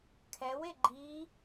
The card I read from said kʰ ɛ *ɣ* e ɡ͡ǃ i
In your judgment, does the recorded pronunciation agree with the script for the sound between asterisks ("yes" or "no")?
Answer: no